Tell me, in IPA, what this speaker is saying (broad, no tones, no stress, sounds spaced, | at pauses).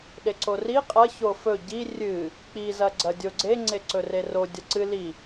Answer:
ɗ e ǀ o r i qʼ ɐ ç o f ɵ ɟ i rʲ ɨ | k͡p i z ɐ ɡ͡ǀ ɐ dʲ o ɡ͡ǀ e ŋ͡ǀ e ǀ ɵ r e r o dʲ ɐ ǀ ɨ l i